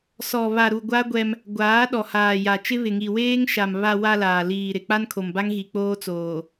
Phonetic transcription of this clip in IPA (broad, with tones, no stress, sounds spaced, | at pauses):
s ɔ˨ β a˨ ɾ u˨ ɡʷ a˦ ɡʷ ɛ˦ m | ɡʷ aː˨˦ ɗ ɔ˨ h aː˨ j a˨ t͡ʃ ɪ˦ β ɪ˨ ŋ i˨ w eː˦ ŋ ʃ a˨ m β a˨ w a˨ l aː˨ l iː˨ ɾ ɪ˨ k͡p a˦ n kʰ o˨ m b a˦ ŋ ɣ i˨ k͡p oː˦ t͡s oː˨